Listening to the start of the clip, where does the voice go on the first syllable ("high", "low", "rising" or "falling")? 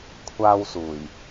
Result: high